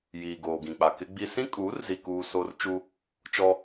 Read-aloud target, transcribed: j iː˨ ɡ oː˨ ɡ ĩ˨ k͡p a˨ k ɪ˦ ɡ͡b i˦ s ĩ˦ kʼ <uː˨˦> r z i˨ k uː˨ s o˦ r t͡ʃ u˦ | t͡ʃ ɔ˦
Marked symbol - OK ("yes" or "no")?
yes